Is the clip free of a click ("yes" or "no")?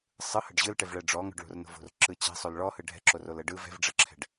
no